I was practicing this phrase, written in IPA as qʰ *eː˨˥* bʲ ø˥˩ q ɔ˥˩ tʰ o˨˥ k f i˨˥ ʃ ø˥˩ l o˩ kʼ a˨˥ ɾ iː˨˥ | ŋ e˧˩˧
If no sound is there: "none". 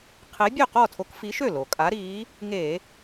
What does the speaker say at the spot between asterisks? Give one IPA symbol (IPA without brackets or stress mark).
e˨˥